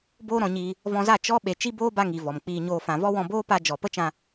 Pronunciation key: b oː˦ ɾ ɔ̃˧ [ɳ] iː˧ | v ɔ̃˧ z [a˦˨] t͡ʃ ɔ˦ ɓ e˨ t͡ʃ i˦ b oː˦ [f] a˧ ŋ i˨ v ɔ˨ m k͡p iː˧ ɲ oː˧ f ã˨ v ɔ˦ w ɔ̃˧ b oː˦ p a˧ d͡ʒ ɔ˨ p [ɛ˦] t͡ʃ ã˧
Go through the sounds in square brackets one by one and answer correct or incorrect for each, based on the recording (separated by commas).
incorrect, correct, incorrect, incorrect